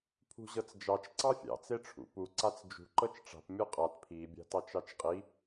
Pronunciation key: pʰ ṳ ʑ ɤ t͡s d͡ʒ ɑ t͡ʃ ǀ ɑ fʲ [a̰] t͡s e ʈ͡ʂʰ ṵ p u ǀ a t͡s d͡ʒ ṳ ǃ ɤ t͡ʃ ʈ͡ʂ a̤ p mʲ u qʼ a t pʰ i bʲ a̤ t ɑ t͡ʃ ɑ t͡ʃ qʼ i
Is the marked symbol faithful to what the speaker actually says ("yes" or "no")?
no